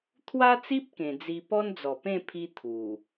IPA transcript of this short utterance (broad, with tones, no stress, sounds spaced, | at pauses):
t̪ʰ w a˦ t͡s i˦ p̚ k ẽ˧ d͡z i˧ p ɔ˦ n d͡z ɔ˨˩ p ẽ˥˧ pʰ i˦ t̪ʰ u˨˩